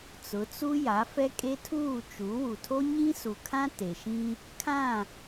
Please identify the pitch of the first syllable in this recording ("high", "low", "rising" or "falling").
rising